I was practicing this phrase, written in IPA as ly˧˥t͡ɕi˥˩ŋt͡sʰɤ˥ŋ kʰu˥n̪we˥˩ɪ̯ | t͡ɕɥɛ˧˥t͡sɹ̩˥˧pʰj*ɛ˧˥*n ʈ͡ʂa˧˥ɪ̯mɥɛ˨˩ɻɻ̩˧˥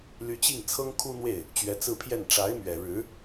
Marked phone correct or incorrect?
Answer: incorrect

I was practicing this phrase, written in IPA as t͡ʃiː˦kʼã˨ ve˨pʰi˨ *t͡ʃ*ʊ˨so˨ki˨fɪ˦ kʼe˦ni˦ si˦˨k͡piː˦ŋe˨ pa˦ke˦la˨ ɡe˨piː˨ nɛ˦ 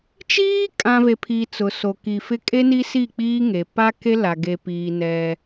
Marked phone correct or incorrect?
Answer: incorrect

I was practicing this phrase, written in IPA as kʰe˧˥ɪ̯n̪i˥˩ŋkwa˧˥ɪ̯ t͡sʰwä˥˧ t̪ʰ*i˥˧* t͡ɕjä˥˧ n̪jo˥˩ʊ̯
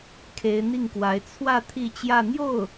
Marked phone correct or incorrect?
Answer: correct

